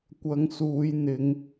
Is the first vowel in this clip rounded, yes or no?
no